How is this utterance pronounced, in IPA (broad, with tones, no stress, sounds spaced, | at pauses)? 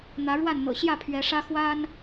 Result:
n̪ ä˨˦ ɻ w a˥˨ n n̪ ɤ̰˨˩ ɕ j ä˥˨ pʰ ɥ ɛ˨˦ ʂ ä˦ x w a˦ n